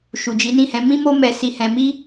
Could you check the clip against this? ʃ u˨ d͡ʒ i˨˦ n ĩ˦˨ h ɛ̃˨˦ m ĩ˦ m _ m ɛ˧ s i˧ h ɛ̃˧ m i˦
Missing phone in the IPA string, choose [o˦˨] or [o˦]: o˦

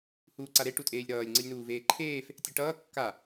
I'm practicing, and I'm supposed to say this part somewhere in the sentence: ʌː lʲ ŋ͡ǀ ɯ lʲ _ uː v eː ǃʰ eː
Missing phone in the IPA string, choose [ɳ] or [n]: n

